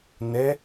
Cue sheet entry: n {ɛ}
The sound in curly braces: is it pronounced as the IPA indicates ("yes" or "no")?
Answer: yes